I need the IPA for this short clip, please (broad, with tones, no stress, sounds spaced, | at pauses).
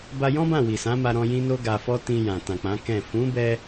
b a˧ j ɔ̃˦ b ã˦˨ w i˨ s ã˨˦ m a˧ ɾ ɔ̃˧ j ĩ˦ n o˦ ɡ a˧ f ɔ˦ t ĩ˧ j ã˨ t ã˨ k͡p ã˨˦ k ɛ̃˦˨ f ũ˨˦ b ɛ˧